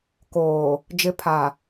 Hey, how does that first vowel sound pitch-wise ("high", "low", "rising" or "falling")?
low